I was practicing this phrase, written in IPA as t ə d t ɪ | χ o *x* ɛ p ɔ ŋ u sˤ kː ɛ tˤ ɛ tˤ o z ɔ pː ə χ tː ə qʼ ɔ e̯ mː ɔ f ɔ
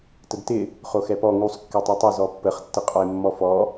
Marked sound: correct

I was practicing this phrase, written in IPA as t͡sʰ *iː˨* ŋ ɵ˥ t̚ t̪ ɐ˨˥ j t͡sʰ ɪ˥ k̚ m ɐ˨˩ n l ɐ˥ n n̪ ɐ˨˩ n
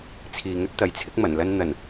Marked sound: correct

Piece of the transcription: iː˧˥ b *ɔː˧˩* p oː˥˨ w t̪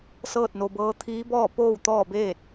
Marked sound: incorrect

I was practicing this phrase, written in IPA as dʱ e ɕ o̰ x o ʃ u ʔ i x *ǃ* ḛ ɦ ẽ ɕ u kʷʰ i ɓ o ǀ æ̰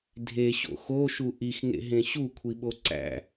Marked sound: incorrect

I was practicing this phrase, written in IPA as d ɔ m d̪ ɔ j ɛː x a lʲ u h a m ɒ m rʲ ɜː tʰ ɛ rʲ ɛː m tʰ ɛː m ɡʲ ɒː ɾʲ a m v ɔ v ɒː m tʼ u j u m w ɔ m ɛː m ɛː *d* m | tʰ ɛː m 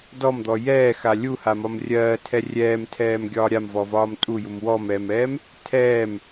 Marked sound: incorrect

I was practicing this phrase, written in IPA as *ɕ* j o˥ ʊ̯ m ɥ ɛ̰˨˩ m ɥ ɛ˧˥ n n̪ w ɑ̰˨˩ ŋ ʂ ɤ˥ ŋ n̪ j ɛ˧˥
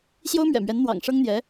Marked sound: correct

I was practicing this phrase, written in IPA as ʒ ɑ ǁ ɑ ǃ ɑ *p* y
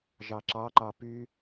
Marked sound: correct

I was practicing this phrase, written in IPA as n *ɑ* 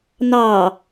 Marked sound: correct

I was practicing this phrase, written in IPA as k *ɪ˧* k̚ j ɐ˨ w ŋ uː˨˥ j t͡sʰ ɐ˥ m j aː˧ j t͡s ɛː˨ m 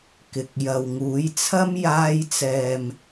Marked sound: incorrect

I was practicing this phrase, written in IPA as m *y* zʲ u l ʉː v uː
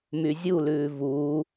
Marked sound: correct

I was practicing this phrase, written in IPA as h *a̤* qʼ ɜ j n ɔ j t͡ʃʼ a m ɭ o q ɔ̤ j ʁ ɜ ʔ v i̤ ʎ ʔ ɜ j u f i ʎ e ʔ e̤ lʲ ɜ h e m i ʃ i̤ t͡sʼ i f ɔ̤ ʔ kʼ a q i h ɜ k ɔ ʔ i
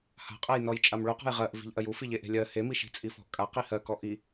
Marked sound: correct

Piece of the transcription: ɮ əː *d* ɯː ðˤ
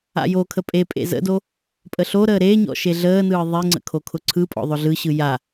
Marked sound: incorrect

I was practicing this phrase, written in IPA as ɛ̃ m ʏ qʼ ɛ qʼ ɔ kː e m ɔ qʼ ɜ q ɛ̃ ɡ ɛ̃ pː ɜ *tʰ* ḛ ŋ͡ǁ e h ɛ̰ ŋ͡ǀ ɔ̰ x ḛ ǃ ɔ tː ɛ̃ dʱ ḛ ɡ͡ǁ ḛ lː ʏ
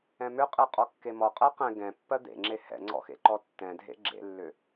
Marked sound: incorrect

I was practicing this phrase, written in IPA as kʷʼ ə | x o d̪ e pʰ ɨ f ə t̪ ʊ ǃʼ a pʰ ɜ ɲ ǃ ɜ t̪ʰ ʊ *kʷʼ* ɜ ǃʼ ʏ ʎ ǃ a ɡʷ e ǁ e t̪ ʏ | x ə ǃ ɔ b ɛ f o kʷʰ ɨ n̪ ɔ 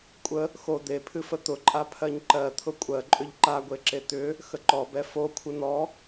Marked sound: correct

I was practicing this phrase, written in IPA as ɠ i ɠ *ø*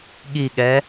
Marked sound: incorrect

